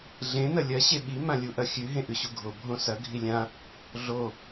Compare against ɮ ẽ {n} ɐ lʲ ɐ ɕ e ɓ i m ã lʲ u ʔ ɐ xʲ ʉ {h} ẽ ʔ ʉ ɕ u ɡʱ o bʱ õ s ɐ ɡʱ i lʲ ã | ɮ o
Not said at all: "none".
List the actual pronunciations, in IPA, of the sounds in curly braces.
n, ɦ

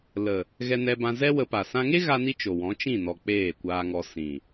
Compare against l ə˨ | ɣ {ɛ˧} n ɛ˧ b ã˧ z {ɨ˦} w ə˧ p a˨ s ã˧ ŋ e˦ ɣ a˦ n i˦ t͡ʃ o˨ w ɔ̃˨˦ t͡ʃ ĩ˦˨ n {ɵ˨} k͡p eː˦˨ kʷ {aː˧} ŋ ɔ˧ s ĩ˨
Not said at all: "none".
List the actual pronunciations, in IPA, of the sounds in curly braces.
ɛ˧, ɛ˦, ɔ˨, aː˧

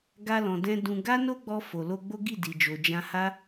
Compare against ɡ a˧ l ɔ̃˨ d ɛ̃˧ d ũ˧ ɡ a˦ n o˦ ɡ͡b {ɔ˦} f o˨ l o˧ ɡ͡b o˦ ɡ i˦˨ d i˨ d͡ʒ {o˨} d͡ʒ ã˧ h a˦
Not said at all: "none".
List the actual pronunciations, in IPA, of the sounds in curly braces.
ɔ˧, o˨

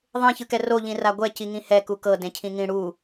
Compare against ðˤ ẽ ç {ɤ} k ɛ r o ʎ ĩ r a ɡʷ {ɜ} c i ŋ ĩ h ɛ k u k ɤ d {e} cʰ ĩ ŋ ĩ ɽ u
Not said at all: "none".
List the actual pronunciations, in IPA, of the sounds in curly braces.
ɯ, ɛ, ẽ

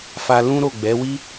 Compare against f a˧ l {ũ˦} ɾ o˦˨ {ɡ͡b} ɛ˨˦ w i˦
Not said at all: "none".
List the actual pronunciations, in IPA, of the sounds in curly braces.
ũ˦, ɡ͡b

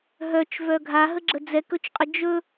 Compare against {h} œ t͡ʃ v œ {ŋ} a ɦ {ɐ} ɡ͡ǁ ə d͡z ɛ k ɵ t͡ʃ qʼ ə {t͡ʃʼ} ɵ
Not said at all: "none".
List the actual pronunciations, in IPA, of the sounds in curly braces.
ɦ, ɡʱ, ə, d͡ʒ

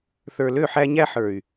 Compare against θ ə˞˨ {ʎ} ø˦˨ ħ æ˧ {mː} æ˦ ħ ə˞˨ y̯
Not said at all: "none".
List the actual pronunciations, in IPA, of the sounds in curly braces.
l, ɲ

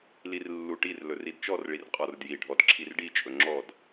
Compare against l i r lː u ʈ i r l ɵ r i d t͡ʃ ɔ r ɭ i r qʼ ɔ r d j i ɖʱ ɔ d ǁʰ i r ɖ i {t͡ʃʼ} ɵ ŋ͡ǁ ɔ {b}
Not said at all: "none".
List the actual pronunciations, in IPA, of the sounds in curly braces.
t͡ʃʼ, d

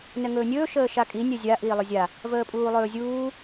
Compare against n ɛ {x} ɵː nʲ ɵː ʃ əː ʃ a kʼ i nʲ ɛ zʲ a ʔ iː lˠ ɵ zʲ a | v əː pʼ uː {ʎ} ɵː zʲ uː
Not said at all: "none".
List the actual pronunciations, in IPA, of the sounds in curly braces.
ŋ, lˠ

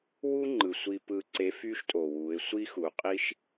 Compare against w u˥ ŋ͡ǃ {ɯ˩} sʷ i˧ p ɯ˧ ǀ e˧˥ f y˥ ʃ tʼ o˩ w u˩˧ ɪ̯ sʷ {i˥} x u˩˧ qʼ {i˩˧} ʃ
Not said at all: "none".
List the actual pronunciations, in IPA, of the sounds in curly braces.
ɯ˩, i˥, i˥

